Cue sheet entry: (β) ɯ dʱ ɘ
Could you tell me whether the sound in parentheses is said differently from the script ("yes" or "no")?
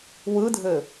yes